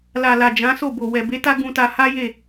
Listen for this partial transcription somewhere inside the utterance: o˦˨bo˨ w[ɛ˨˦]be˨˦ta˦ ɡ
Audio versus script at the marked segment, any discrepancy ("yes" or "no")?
yes